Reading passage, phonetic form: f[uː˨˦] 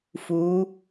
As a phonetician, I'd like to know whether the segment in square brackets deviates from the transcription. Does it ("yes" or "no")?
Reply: no